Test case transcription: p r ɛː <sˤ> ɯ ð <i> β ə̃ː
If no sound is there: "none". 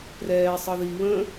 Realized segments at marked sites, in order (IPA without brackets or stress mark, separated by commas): sˤ, i